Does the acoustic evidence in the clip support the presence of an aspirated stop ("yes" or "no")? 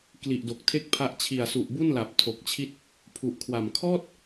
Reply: yes